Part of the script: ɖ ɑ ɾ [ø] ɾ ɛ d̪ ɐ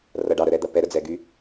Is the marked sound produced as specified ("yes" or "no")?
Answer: no